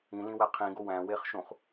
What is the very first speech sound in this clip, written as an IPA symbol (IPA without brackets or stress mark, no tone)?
ĩ